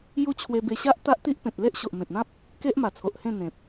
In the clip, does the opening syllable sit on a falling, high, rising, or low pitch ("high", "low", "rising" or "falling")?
high